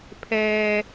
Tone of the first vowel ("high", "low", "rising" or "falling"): low